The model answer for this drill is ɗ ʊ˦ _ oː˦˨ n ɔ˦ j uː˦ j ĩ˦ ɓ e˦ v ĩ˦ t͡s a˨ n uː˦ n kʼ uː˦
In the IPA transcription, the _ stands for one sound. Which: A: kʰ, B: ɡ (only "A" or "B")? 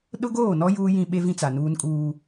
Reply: B